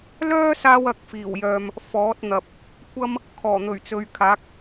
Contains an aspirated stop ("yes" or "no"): yes